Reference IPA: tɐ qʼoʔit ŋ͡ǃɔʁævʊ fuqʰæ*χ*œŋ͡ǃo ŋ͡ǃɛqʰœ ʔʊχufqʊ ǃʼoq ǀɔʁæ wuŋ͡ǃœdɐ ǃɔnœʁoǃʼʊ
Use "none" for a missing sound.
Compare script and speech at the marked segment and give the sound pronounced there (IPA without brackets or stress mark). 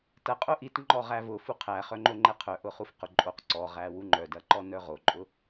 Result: χ